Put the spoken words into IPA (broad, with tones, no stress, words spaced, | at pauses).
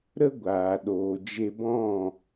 ɾə˦ɡʷaː˨ɗoː˨d͡ʒe˧ bɔ̃˦˨